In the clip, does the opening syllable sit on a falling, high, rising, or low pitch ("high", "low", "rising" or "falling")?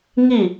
falling